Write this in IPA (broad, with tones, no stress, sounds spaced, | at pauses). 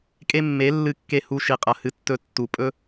kʼ e˦ mː e˨˦ lː ɨ˧ kː e˧ h u˧ ʃ i˨ qʼ ɐ˨ h ɨ˧ tː ɵ˧ tː u˨ pʼ ɵ˦